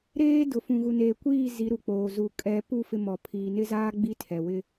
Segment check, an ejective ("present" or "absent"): present